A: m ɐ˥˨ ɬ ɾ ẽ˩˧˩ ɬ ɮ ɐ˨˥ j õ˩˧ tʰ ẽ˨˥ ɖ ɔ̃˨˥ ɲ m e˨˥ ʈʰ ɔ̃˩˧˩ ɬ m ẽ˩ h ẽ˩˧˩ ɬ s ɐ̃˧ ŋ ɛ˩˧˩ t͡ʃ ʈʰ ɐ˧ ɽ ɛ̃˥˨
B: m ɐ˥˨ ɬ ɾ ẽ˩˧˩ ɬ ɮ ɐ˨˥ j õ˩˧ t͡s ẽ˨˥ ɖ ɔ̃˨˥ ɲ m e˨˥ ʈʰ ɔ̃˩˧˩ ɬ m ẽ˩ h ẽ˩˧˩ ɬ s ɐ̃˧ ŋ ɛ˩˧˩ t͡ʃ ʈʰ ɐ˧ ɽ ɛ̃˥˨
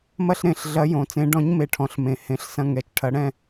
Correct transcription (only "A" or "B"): B